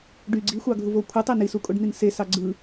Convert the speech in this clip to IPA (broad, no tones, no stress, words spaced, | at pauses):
ɖy ɡ͡ǀixʷɑɡʱuvo kʷʰɯtˤe nisukʼoɖn̪in sesɑ ɡ͡ǀɯ